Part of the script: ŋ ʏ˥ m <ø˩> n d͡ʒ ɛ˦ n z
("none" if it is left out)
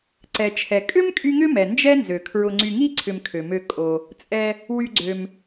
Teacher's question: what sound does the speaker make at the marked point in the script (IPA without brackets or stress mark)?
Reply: ɛ˩